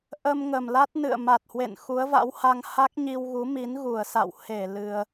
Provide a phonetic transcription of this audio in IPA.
ʔ ə˧ m ŋ ə˨˩ m l a˦˥ t̚ n ɨ̰˧˨ ə̯ m a˨˩ t̚ h w ḛ˧˨ n x u˨˦ ə̯ v a̰˧˥ w h a˧ ŋ h a˦˥ k̚ ɲ i˧ w ɣ u˨˦ m i˨˦ n ɣ u˧˩ ə̯ s a̰˧˨ w h e˧˩ l ɨ˧ ə̯

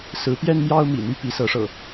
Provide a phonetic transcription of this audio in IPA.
s ɹ̩˨˦ p j ɛ˦ n m j ɑ˦ ʊ̯ m ḭ˨˩ n̪ y˦ p i˨˦ s ɤ˨˦ ʂ ɤ̰˨˩

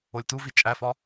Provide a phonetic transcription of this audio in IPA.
o lʲ t u v i t͡ʃʼ æ f ɒ

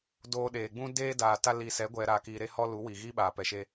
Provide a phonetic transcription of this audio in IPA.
d oː˧ ɗ eː˨ ɡ͡b ũ˦ d eː˦ d aː˨ t a˧ l i˨ s ɛ˨˦ ɡʷ ɛ˨ ɾ aː˨ k iː˨ ɾ e˧ h ɔ˧ l u˨˦ w i˨ ɣ iː˦ ɓ aː˨ p ɛ˨ ʃ e˧

